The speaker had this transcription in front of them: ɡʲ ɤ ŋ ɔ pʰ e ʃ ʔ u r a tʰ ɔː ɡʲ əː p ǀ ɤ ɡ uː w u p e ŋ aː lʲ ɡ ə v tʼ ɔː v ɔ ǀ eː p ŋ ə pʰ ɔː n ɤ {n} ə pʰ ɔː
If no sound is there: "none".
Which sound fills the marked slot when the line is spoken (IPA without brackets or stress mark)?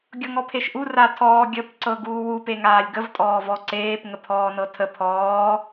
tʰ